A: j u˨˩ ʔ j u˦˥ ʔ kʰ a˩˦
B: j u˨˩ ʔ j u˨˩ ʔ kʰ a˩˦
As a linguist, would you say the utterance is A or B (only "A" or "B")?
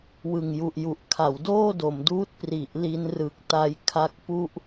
B